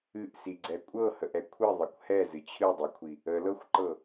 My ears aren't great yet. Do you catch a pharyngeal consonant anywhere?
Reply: no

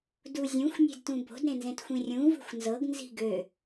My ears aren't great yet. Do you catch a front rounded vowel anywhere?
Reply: yes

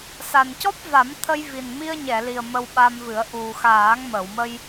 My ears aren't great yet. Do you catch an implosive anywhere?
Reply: yes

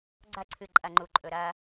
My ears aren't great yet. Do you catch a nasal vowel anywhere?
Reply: no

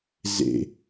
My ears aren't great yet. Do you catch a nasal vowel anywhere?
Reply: no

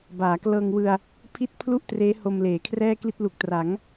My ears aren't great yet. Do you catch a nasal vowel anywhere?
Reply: no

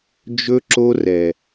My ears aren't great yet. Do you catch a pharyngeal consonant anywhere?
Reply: no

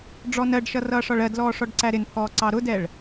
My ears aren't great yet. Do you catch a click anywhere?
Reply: yes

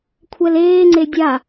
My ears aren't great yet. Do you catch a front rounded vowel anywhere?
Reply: no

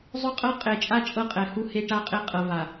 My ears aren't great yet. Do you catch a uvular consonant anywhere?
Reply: yes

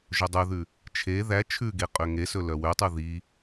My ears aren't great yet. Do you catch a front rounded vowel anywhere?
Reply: yes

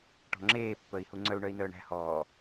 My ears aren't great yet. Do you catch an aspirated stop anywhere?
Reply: no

